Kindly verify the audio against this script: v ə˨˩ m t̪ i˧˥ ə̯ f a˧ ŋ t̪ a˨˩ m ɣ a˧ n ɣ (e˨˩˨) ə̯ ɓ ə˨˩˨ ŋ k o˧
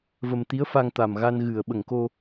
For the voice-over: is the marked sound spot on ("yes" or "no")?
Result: no